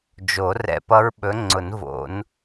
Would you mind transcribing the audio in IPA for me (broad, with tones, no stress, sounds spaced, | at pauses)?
d͡ʒ o˨˩˦ r ɛ̰˧ p ʌ˦˥ ɹ ɓ ɵ˨˥ ŋ͡ǀ ʊ˨˩˦ n v o̰˨˩˦ n